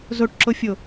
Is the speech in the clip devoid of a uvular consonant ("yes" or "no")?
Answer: yes